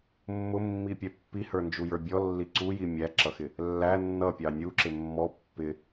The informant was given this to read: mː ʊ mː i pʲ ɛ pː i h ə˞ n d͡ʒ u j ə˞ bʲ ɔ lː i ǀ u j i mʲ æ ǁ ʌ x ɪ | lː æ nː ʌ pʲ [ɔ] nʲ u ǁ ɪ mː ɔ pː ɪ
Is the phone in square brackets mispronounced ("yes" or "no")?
yes